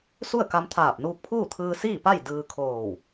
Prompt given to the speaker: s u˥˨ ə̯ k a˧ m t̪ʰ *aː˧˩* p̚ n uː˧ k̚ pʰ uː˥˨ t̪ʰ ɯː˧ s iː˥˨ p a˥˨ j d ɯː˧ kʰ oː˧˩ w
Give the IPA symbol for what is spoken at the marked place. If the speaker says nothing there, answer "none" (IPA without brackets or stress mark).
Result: aː˧˩